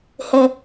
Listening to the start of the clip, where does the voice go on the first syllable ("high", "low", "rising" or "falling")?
high